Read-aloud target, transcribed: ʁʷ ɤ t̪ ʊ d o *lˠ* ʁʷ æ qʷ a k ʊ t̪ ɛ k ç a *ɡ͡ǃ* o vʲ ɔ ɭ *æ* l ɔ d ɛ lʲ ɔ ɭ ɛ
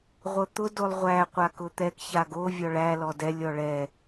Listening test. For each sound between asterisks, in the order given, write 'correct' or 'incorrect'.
correct, incorrect, correct

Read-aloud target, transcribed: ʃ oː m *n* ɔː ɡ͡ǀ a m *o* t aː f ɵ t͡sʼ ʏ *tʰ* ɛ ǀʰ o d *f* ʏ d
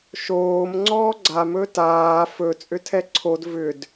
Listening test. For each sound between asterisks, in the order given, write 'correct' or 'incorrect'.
incorrect, incorrect, correct, incorrect

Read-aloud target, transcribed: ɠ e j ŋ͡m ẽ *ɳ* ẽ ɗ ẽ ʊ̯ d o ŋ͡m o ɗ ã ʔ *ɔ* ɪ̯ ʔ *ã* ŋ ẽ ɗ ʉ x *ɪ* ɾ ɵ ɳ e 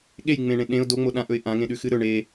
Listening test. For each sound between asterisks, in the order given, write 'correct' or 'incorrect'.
correct, incorrect, correct, incorrect

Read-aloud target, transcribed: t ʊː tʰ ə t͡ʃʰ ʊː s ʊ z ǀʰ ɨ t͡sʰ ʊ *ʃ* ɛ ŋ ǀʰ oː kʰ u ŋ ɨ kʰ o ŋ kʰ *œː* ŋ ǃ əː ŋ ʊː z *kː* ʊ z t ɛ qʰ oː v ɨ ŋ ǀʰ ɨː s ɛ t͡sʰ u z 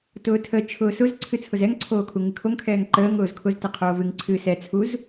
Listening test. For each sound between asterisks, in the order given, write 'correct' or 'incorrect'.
incorrect, incorrect, incorrect

